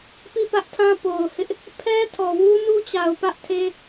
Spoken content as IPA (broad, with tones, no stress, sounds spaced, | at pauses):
p i˦˨ p ä˦ ʔ tʰ ã˦ p o˨ ʊ̯ h ɪ˦ ʔ | pʰ ɛ˦ tʰ ɔ˨ w u˦ n u˦ t͡ɕ a˨ ʊ̯ p ä˦ ʔ tʰ e˦